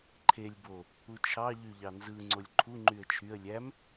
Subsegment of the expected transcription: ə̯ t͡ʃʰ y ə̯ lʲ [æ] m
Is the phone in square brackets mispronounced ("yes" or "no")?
no